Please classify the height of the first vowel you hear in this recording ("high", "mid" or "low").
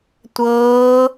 mid